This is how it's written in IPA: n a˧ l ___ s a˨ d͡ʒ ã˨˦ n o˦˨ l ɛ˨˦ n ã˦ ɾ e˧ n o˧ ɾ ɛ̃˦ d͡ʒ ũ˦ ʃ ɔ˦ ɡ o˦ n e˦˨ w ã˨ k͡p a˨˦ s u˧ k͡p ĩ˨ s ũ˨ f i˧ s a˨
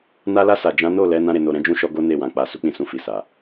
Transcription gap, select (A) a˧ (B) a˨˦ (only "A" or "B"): A